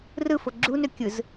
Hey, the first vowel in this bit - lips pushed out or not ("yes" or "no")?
no